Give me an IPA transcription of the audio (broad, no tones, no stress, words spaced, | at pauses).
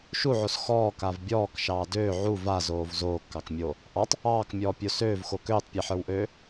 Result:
ʃuʕos xɔːkav bʲɔːkʃɑː døː ʕu vazoːv zoːkːɑkmʲoː | ʔɑtˤ | ɑːkmʲɔːpʲo søːvxo køːtˤpʲɑħə˞wʔøː